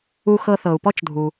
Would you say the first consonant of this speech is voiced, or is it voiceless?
voiceless